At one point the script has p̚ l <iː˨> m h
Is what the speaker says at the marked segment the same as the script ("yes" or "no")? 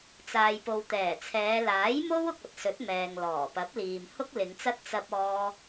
yes